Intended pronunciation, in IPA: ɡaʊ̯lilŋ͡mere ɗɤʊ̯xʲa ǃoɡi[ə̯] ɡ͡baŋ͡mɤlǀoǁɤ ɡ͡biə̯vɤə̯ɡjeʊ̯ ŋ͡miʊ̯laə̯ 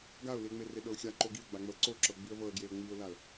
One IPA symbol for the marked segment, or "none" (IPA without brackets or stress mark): ə̯